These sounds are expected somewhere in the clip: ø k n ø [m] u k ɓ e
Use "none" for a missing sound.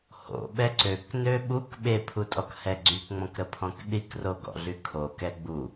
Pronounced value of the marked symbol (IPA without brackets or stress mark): ɓ